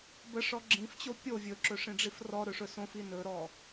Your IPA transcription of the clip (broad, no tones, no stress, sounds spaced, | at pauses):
b ə ʂ ɔ ɡ͡ǁ ĩ f t͡ɕ o pʲ o vʲ ɵ ǁ ɵ ʂ ĩ ɖ͡ʐ i f r ɔ ɾ ɵ ʂ ɵ s õ f i n ɵ ɾ ɔ